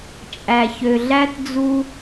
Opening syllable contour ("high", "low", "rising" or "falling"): low